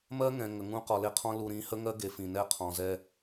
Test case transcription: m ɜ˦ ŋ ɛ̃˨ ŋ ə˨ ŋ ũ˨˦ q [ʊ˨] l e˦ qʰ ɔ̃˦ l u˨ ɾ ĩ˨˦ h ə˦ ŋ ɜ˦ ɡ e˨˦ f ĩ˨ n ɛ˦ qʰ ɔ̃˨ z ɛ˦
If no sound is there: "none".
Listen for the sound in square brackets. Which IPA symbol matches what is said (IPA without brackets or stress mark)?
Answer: ɔ˨